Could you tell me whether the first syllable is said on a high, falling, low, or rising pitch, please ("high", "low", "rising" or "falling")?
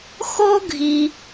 high